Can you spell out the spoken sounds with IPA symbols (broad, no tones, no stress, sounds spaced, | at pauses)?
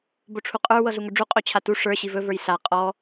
b o ʈ͡ʂʰ u qʼ ə˞ w ɤ ɮ u ŋ ɵ ɖ͡ʐ u qʼ o t͡ɕʰ a t u ʂ ə˞ ɕ i v ɵ v ə˞ j ɬ a qʼ ɔ